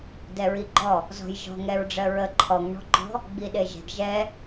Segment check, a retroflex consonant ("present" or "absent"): present